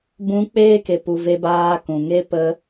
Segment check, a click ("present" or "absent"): absent